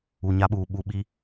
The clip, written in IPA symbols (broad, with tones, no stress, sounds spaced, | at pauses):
u˨ ɲ a˦ ɓ uː˨ ɓ u˦ ɓ i˦